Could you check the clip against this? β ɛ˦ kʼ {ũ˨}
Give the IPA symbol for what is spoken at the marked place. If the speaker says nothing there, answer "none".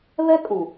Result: ũ˨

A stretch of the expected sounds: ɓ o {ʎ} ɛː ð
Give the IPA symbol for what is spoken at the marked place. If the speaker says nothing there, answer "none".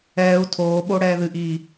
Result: ɽ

